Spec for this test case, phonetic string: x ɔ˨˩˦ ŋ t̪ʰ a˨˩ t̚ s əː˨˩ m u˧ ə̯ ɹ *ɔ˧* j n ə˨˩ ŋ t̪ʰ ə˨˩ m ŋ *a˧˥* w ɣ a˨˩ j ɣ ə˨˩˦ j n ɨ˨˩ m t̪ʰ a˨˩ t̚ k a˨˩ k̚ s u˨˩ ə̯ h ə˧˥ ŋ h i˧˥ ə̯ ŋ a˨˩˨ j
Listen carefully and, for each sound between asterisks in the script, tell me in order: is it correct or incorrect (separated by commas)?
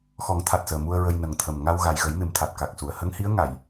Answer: incorrect, incorrect